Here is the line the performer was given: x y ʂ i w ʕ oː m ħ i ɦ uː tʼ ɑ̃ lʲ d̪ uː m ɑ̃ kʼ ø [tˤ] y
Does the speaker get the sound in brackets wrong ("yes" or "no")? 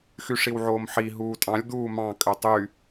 no